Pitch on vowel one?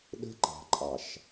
high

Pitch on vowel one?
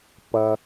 low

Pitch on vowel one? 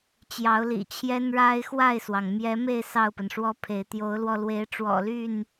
rising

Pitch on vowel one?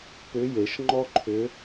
rising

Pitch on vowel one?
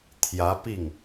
rising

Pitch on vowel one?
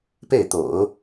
falling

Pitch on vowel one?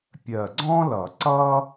low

